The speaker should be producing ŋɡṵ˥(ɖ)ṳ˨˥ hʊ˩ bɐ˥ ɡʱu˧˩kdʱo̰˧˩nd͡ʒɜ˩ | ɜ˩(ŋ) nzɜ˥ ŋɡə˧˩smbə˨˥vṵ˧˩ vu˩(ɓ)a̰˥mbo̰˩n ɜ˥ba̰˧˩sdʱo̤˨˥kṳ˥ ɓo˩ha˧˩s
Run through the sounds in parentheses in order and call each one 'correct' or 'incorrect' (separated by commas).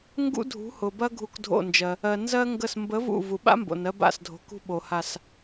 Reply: incorrect, incorrect, correct